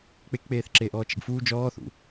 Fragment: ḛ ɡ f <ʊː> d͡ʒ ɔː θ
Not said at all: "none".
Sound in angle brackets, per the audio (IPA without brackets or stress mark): uː